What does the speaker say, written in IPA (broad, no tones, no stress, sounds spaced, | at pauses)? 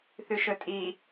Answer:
θ ʉ ʃ ɵ tʼ i